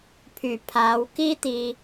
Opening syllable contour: low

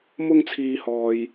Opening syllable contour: high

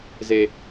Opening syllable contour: low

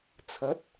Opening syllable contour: rising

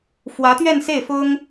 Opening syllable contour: rising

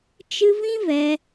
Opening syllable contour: high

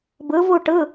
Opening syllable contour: rising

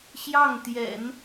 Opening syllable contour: falling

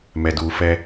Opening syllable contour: low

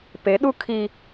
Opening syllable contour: rising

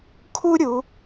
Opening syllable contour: high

